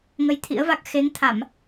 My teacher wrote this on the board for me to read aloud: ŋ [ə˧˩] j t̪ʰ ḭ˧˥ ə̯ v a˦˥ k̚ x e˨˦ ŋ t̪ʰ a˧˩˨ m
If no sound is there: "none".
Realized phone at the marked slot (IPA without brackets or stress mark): ə˧